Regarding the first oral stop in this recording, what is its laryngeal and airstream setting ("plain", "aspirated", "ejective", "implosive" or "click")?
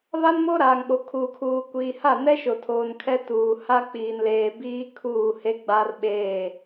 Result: implosive